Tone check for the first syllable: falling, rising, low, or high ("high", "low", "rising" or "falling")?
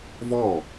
falling